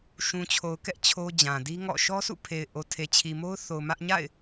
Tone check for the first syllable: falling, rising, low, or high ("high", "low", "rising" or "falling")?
low